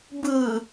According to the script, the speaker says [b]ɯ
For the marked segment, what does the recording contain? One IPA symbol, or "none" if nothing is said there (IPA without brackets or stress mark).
b